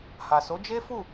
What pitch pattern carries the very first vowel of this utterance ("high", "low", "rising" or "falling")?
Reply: low